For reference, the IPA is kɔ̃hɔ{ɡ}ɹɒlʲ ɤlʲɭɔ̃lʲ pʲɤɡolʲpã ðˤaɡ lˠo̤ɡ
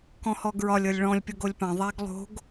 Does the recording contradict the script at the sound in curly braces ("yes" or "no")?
no